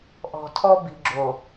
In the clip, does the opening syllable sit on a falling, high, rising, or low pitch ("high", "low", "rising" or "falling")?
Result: low